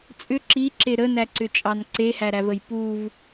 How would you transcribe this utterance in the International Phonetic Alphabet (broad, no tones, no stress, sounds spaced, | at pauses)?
t͡sʼ ʏ ǁ i ǁ e ɾ ə n æ ǀ ʏ t͡ʃʼ ɑ n ǀ e h æ ɾ æ v ə j p u v